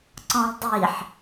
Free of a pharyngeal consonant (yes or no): no